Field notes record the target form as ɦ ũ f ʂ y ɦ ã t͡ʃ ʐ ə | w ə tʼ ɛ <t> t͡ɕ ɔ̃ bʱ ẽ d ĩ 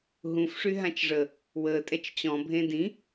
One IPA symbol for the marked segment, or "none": t͡ʃ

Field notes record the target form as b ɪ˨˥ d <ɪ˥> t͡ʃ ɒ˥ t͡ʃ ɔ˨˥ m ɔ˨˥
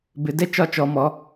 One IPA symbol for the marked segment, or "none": ɛ˥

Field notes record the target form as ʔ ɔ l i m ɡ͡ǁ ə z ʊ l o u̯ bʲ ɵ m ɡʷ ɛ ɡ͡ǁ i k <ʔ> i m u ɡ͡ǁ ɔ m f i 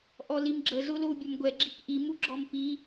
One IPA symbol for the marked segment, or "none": ʔ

